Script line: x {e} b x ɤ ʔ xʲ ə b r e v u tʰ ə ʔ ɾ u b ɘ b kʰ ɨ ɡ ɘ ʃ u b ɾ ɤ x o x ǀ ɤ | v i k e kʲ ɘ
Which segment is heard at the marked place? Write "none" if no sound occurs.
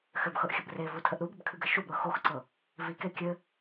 ɘ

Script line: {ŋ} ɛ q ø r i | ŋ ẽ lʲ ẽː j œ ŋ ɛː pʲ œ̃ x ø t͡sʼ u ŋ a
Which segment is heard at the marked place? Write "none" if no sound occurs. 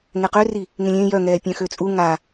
ŋ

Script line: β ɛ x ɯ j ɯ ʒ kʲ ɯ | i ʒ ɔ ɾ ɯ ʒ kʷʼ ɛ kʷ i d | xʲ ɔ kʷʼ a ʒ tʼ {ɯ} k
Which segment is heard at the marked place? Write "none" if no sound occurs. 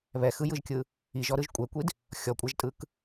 ɯ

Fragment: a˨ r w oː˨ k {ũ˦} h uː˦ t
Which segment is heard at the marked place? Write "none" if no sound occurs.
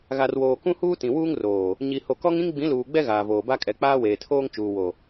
ũ˦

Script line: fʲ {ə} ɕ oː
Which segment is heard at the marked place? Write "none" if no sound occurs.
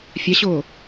a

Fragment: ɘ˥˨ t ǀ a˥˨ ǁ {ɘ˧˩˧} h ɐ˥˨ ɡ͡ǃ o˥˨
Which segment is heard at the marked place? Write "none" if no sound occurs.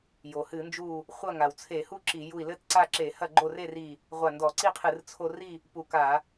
e˧˩˧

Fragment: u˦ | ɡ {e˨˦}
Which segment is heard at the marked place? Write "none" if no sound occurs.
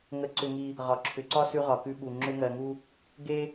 e˦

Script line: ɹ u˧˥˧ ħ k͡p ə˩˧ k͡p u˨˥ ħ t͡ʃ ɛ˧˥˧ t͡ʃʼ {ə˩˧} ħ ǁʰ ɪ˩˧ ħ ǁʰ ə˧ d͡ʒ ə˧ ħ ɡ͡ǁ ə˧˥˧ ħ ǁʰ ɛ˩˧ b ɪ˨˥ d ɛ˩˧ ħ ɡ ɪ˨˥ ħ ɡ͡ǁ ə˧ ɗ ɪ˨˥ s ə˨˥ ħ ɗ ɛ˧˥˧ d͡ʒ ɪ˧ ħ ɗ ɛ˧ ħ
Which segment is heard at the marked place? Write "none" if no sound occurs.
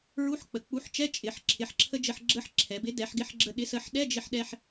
ɪ˩˧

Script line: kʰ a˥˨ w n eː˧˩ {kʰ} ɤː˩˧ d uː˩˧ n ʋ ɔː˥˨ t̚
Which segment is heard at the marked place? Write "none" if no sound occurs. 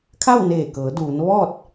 k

